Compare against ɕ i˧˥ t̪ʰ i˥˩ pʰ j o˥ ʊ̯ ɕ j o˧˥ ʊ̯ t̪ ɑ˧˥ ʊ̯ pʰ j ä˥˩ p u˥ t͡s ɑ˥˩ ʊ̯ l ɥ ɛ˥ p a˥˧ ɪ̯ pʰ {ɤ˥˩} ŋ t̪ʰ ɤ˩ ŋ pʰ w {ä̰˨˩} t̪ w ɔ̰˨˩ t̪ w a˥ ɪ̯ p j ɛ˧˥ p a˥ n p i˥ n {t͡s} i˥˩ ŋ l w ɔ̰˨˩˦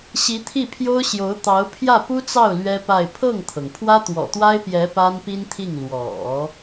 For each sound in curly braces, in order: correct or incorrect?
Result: correct, incorrect, incorrect

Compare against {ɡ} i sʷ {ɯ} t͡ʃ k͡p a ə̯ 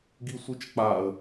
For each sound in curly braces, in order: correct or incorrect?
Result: correct, correct

